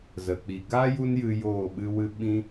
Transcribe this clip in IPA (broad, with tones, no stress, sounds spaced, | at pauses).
z ə˨ k͡p i˨ ɡ a˦ j u˦ n j ɨ˧ j oː˦˨ ɓ ɨ˦ w ɨ˦ ɓ ĩ˦